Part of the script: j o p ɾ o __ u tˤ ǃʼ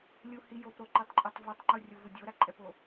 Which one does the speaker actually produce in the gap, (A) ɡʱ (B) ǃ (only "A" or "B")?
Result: B